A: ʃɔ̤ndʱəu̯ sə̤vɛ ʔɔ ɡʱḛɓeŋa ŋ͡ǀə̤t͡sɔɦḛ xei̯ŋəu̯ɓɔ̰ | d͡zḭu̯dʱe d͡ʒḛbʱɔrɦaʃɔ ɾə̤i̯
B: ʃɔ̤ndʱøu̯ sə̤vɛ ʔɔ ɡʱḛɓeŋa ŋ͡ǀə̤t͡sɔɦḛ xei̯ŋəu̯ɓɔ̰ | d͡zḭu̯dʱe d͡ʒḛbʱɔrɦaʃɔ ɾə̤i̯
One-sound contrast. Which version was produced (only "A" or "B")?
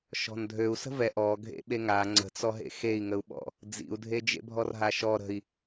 B